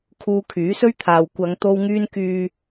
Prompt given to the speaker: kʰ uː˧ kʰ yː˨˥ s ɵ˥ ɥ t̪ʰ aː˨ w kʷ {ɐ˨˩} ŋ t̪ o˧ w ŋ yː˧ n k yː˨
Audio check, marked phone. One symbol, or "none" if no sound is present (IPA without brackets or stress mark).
ɐ˨˧